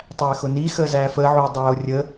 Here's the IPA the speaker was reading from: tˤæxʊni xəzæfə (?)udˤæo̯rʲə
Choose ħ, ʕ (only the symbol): ʕ